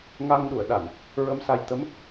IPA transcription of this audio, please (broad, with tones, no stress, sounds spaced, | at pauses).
ŋ a˧ ŋ ɗ u˨˩˨ ə̯ ɗ a˨˩˨ n | ɹ ə˧ m s a˧ j t̪ ə˧˥ m